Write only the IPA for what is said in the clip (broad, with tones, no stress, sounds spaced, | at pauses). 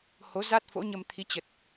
h o˨˦ z a˦˥ t̚ f o̰˧˥ ɲ ə˧ m t̪ʰ i˨˦ t͡ɕ ə˨˩ t̚